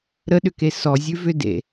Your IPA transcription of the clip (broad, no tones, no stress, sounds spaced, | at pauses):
ɾ ə ɗ ʏ k e s ɔ zʲ ʉ v ʏ d ḛ